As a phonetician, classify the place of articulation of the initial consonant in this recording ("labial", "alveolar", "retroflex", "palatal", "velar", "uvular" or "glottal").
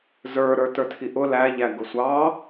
alveolar